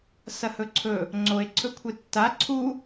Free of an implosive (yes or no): yes